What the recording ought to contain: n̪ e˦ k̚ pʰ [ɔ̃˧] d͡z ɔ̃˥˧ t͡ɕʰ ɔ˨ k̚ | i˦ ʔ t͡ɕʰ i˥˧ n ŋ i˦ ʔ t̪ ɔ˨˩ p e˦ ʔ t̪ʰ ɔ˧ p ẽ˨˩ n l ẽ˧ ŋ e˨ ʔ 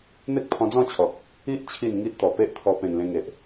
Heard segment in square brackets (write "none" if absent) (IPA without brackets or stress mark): ɔ̃˧